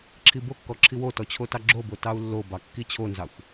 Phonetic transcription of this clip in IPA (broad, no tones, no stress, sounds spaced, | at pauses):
ǁʰ i b o kː ɔ ǁʰ i w o t ɔ t͡ɕʰ o t ɑ ɡ͡ǁ o b o t ɑ u̯ lː o b ɑ kː i t͡ɕʰ o n z ɑ xʷ